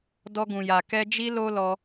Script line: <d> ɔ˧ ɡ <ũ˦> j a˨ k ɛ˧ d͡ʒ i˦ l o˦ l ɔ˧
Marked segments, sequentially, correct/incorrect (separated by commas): correct, incorrect